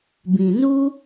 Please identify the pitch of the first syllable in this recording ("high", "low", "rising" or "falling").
low